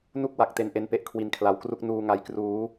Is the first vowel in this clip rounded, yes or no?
yes